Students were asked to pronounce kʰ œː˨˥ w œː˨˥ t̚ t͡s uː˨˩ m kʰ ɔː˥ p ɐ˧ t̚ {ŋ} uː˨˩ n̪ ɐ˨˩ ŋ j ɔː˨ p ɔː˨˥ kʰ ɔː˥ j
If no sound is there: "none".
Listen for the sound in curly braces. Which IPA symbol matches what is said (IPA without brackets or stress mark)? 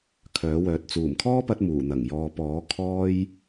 m